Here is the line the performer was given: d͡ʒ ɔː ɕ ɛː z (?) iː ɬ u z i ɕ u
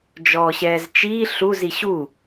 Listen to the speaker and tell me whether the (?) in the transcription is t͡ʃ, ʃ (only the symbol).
t͡ʃ